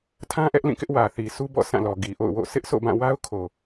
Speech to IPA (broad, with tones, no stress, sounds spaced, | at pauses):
tʰ ã˦ ʔ ɛ˦ ʔ l ĩ˦˨ k ɪ˦ ʔ w ä˨ θ i˨ sʰ u˦ b ɔ̰˦˨ sʰ ã˦˨ l ɔ˨ ɡ i˨ ʔ o̰˦˨ ʊ̯ w o̰˦˨ s ɪ˦ ʔ sʰ o̰˦˨ b ã˦˨ w a˦ ʊ̯ kʰ o˨